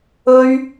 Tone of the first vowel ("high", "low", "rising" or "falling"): high